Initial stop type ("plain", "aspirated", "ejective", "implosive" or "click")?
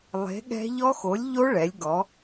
implosive